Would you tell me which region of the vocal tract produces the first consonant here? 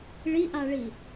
retroflex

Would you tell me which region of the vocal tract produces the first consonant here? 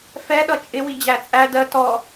lips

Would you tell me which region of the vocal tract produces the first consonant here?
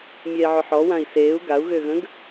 lips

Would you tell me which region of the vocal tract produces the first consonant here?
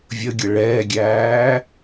lips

